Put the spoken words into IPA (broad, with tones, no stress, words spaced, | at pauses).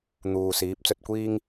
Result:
n̪uː˨siː˨˥p̚ t͡sɵ˧t̚kʷiː˥ŋ